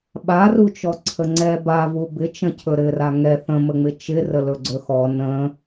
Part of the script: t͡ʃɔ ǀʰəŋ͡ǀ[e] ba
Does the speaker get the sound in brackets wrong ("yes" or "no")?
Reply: yes